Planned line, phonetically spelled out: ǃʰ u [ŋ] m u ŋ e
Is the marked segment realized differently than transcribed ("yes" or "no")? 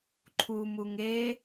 yes